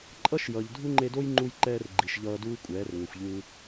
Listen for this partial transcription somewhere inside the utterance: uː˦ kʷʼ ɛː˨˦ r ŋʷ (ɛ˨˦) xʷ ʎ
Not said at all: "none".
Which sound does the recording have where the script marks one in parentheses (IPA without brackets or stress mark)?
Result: ɛ˨